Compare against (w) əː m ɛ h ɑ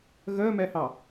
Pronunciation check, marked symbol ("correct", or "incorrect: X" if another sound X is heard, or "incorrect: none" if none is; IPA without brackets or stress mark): incorrect: ɣ